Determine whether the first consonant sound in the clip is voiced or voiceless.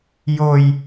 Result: voiced